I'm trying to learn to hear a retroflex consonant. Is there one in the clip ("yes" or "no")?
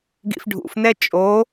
yes